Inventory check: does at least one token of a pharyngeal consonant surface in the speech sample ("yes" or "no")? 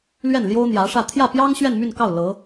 no